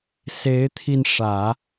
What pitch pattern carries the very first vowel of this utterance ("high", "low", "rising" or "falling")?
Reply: rising